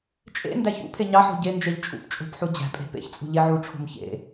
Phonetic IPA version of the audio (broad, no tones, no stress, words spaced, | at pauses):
t͡ʃʼḛndæç ṵpʰe ɲɑħo̤ ɟend͡ʒeʎ t͡ʃʼṵp t͡ʃʼo̤pħu d͡ʑæ̤pʼe̤ pḛçt͡sʼṳ ʎeʕuʈ͡ʂʰo̤m çḛ